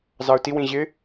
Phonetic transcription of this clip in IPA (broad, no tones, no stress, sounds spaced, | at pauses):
z ɑ ʊ̯ t i w ĩ ʑ ɪ